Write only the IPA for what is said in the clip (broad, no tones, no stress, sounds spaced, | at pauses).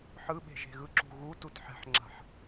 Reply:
ħ ɯ ɓ e̤ ʒ e̤ ɣ ɯ ǁ ṳ ɣ u t u t ħ ɛ̤ ħ ŋ͡ǁ a̤ ħ